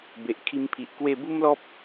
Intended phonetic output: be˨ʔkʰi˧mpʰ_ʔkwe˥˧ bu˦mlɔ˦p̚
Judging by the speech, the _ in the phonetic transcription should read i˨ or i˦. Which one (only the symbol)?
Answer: i˨